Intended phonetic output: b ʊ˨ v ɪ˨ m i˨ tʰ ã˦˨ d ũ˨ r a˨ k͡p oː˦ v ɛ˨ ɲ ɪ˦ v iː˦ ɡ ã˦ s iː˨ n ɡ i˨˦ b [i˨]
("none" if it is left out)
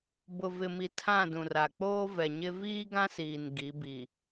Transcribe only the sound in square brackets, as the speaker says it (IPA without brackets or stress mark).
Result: i˨